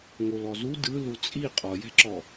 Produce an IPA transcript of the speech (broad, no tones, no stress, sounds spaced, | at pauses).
ŋ o l ɔ z u d ɯ l u t͡sʼ i qʼ ɔ j ɛ̤ ǁ ɔ